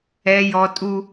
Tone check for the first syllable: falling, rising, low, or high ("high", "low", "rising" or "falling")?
low